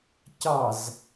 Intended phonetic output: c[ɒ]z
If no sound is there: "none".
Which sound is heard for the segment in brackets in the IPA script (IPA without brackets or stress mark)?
ɑ